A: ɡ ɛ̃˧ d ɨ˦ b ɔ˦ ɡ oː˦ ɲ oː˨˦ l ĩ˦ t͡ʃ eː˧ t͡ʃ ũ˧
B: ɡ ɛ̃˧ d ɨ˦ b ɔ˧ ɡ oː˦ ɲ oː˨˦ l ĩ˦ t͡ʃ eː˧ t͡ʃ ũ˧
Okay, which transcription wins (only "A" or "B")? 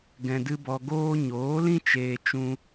B